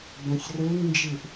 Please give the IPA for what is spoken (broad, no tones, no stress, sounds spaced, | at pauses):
b œ̃ ç r ø ŋ n d͡ʒ ɪ ʔ